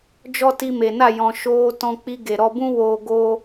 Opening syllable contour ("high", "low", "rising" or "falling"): high